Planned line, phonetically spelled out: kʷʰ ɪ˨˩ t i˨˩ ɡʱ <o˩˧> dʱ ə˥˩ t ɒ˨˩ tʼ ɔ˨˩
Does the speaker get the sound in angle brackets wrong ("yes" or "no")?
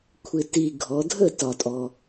yes